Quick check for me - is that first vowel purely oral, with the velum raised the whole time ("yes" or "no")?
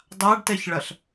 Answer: yes